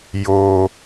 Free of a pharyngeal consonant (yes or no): yes